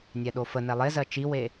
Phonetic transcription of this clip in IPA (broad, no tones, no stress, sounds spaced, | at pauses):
nʲ ɛ ɗ o f ə n ɛ lˠ e z ɜ t͡ʃ i w e